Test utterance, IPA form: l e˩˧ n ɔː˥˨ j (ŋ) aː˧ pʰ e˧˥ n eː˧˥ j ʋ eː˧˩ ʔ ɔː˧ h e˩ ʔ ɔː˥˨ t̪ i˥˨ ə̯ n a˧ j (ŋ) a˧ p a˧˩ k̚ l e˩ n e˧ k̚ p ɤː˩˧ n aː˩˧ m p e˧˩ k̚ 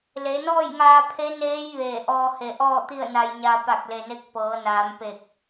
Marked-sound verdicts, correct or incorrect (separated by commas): correct, incorrect